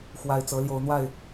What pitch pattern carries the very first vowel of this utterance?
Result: low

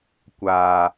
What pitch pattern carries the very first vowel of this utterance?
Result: low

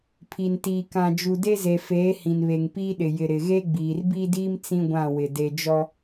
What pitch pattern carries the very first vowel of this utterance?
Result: low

